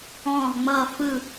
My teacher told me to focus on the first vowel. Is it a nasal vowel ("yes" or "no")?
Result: yes